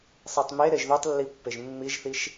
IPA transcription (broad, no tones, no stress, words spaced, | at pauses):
sˤetˤme ɾeʒðøtˤlːipːeʒ mːiʒθiʃ